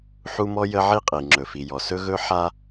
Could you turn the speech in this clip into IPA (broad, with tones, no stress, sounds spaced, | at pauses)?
ħ u˦ m ɔ˦ j ə˦ ʕ i˦ qʼ i˨ ŋ͡ǁ ɵ˨ f i˨ j ɔ˨ s ɵ˦ ɣ ɵ˦ ħ a˦